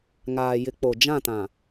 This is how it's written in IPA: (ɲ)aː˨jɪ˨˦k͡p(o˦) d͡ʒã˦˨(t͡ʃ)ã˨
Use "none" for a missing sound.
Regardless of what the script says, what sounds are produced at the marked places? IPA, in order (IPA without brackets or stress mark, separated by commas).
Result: ŋ, o˨, t